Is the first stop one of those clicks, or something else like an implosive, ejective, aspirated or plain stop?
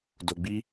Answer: plain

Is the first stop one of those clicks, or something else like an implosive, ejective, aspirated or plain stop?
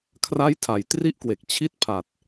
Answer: aspirated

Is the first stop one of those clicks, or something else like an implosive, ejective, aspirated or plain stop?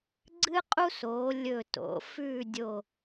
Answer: click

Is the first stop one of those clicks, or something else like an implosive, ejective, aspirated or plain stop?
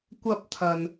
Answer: plain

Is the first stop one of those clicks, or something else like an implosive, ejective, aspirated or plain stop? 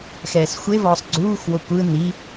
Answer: click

